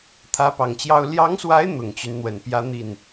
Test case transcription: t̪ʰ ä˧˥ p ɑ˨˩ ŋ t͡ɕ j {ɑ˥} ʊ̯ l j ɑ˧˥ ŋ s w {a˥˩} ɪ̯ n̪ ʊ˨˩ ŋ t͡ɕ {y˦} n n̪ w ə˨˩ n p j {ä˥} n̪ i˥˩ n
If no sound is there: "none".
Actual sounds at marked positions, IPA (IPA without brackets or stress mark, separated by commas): ɑ˥, a˧˥, y˦, ä˥